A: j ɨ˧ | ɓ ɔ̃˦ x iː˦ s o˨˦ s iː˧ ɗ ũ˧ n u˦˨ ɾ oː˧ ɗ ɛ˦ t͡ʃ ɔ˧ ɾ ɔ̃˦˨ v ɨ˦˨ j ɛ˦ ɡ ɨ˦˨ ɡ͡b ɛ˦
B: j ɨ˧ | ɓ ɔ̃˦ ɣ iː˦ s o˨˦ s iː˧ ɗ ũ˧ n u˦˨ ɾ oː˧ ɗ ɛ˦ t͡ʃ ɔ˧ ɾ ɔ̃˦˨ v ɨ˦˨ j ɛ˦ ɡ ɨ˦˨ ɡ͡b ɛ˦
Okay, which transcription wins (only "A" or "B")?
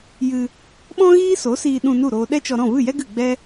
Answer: B